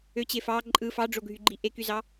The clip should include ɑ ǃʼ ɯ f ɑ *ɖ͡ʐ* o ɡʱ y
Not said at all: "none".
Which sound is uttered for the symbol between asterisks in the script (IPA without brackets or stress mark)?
ɖ͡ʐ